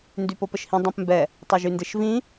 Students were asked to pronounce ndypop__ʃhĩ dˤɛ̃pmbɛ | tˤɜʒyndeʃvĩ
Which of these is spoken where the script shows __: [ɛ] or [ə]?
ə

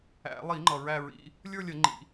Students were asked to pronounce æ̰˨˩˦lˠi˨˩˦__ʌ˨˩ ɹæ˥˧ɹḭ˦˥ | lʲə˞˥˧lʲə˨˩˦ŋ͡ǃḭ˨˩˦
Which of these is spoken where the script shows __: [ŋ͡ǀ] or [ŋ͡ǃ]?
ŋ͡ǃ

